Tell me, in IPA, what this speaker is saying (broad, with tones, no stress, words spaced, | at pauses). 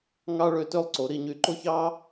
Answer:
ŋɑ˥ɭø˥˧tø˥lˠ ǀo˩˧ɾi˧˩ ɲy˧˩ǃo˥çɑ˥